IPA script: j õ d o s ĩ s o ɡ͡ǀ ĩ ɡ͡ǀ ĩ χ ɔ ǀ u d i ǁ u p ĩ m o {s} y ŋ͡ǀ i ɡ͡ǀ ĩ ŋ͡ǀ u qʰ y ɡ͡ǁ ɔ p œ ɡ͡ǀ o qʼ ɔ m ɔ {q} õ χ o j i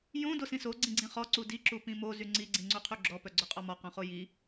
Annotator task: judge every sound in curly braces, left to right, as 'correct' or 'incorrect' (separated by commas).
incorrect, correct